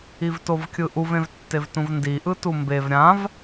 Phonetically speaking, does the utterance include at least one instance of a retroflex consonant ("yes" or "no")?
no